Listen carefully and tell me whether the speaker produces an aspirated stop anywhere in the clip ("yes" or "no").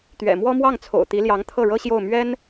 yes